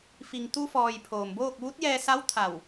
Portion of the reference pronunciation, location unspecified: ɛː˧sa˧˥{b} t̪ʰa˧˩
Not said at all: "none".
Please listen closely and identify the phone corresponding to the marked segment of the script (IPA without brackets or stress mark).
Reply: w